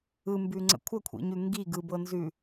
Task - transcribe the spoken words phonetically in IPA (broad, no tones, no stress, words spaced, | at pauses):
ɯmbʉŋ͡ǀə̰ kʷʰəkʷʰḭɲʉ ŋɡi ɡɯbɤnzʉ